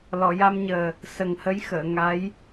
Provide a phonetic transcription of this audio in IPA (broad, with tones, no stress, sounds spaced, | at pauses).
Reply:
l ɔ˨˩˨ j a˧ m ɲ əː˨˩ | s ə˨˩ ŋ h ə˧˥ j x əː˨˩˨ ŋ a˧˥ j